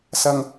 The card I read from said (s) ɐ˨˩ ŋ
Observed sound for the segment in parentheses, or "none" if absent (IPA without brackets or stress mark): s